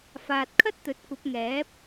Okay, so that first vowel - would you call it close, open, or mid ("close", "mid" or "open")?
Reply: open